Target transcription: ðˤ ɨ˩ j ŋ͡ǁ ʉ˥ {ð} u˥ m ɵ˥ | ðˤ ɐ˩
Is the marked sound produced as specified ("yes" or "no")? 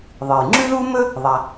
yes